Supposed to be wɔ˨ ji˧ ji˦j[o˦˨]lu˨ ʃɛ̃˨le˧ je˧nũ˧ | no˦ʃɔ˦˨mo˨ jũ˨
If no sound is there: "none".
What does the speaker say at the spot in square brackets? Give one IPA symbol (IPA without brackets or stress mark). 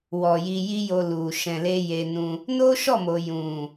o˧